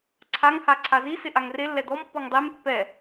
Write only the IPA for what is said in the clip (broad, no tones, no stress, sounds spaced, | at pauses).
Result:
ǀʰ a ŋ h a ǀʰ a z i s ɪ ʔ a ŋ r e lː ɛ d̪ ɔ m pː ɔ ŋ dˤ e m pː ɛ